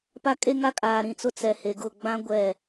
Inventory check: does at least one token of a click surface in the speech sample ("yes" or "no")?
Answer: no